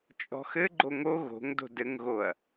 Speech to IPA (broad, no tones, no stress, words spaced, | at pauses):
t͡ʃʼɔ̤xɘ ɡ͡ǃoŋo ɣo̤ŋdo̤ dɘŋɣoɐ̯